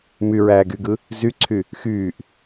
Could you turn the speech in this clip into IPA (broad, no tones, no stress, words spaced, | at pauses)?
myɹæː ɡyɡɯ | zyǀʰy | xyːʔ